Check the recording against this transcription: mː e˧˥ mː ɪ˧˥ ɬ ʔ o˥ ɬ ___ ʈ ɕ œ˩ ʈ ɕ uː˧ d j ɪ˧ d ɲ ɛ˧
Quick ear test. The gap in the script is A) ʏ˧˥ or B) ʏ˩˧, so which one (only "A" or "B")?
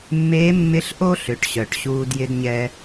B